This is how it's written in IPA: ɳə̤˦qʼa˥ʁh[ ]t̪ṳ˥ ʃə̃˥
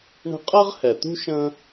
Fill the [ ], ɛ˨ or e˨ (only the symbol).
ɛ˨